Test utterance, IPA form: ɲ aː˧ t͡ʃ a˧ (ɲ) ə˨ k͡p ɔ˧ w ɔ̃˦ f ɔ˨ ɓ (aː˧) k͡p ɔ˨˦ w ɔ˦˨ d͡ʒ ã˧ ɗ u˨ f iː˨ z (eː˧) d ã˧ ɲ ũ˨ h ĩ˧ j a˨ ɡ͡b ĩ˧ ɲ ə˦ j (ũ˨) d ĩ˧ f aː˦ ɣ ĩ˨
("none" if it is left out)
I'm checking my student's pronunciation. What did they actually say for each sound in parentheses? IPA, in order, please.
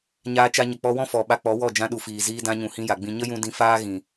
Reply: ɲ, a˧, iː˧, ũ˧

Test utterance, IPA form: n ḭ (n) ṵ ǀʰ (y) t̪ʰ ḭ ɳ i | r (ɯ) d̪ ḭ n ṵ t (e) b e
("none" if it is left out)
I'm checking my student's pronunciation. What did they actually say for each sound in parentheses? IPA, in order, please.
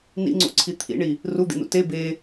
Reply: ŋ͡ǀ, i, u, e

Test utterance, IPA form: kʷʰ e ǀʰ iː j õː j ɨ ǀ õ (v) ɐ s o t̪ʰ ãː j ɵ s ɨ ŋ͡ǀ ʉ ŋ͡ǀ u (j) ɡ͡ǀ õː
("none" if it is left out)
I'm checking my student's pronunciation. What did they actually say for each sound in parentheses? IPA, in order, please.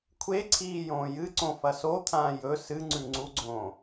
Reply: f, none

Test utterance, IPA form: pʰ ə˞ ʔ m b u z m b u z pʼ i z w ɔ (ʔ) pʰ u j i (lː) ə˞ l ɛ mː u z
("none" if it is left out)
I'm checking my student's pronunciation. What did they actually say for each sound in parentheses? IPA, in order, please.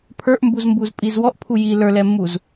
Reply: ʔ, l

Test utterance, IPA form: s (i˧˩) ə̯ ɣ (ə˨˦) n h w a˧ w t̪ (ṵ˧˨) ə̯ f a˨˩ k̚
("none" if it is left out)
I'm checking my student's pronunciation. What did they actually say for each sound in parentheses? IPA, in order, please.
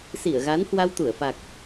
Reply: i˧˩, a˨˦, u˧˩

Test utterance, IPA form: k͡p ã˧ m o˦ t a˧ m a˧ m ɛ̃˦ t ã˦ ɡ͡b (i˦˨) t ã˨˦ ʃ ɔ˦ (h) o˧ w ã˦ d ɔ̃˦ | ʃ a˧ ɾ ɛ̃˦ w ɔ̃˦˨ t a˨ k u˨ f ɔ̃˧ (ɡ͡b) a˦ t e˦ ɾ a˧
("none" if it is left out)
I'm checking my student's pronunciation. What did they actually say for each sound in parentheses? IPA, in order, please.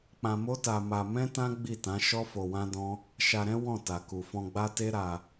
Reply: i˦˨, f, ɡ͡b

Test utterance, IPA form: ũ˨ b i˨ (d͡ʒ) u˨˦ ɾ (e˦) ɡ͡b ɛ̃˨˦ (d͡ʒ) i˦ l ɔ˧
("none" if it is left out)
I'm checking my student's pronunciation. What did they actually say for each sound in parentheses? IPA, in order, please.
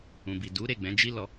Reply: d, e˦˨, d͡ʒ

